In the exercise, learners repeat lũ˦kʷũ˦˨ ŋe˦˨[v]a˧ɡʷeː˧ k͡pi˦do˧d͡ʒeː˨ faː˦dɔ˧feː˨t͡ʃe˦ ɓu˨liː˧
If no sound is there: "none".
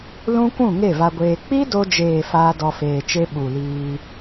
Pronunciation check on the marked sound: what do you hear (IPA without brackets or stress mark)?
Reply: v